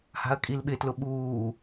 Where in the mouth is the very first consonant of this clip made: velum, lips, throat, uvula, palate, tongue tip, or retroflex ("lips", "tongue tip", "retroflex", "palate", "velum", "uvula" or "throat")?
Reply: throat